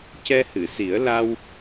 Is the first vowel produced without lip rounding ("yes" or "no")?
yes